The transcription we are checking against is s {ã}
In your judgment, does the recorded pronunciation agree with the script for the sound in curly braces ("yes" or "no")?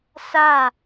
no